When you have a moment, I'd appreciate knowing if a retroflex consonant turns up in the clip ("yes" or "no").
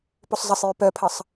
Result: no